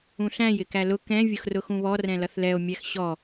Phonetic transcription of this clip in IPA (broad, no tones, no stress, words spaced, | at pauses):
ũɬæ̃j ɪkælʊ kɛ̃ vʲʊxrʊxũβɔ rɛ̃lʌθlɛo̯ mʲæxɕɔ